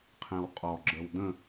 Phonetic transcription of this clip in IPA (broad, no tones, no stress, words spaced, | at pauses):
qʰɛ̃wqʼɔɡ͡ǁəw də̃